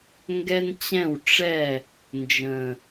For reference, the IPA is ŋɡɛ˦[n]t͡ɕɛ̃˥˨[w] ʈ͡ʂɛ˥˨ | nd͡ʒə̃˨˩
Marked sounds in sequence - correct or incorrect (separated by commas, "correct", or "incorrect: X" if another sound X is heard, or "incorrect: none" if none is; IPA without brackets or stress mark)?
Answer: correct, correct